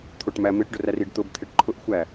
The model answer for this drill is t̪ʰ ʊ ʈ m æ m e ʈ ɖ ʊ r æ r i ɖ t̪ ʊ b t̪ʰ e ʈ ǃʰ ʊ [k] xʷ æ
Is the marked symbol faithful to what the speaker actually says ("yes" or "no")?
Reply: no